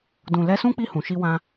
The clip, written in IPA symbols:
d ũ˨ l ɛ˧ s ũ˦ k͡p i˦˨ h ũ˨ ʃ i˧ w ã˧

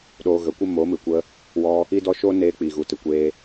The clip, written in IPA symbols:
ɗ oː˧ ɣ ə˨˦ kʷ ə˦ m o˨˦ m ɨ˨ kʷ ə˧ | w ɔ˧ | i˦ d ɔ˦ ʃ o˦ n eː˧ k͡p i˨ ɣ u˨ t ɨ˨ kʷ eː˧

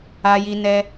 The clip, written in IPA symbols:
a˧ j i˧ n ɛ˧

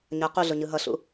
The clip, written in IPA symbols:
ɲ ʌ q u ɮ ʊ ɲ ɯ ɦ ʌ ɬ ṵ

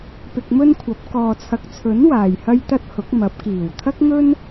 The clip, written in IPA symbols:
p ɪ˧ k̚ m ɵ˥ n kʷʰ ɐ˨˥ p̚ k ɔː˨ t͡sʰ ɐ˨ k̚ t͡sʰ ɵ˨˥ n w aː˨ j h ɐ˥ j t̪ ɐ˥ t̚ h ʊ˨˥ k̚ m ɐ˨˥ p̚ k iː˨˩ w t̪ʰ ɐ˥ k̚ ŋ ɵ˥ n

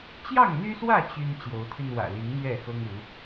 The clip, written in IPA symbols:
t͡ɕ j ɑ˥˨ ŋ n̪ y˦ s w ä˥˨ t͡ɕ y˦ n t͡ɕ j o˨˦ ʊ̯ t̪ʰ y˧ n w ä̰˨˩ l i˨˦ ŋ n̪ ɥ ɛ˥˨ x ɤ˦ ŋ u˨˦

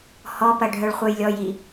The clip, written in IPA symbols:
h ɔ p ɐ ɖʱ œ ɭ χʷ ɛ j lʲ ɔ j i

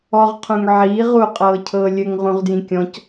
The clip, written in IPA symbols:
ɔ ʁ qʰ ũ ŋ ʕ iː ʁ u qʼ ɤː cʰ ɤː lʲ ɘ ŋ ʁ ũ ʁ d j ĩ kʲ ɔ̃ c

